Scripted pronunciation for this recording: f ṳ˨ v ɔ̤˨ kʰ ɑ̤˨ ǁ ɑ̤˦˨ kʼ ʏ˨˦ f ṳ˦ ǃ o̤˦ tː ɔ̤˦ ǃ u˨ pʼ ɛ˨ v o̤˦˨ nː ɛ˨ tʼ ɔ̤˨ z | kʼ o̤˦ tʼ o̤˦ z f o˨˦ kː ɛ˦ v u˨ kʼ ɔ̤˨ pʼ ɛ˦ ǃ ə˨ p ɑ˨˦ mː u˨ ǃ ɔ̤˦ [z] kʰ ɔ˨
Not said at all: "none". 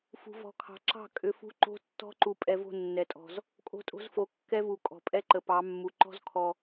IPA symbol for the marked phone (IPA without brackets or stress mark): z